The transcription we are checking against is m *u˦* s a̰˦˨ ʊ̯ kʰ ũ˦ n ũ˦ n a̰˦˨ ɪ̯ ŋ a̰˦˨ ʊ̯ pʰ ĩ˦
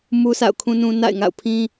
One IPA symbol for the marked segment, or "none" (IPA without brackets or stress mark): u˦